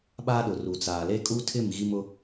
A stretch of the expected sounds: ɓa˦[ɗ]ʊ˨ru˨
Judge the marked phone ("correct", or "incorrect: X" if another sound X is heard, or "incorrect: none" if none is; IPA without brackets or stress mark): correct